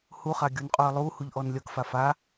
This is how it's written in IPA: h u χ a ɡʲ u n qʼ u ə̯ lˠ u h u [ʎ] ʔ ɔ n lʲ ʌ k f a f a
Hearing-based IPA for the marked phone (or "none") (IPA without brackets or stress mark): ʎ